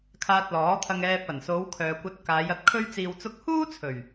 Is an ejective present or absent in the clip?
absent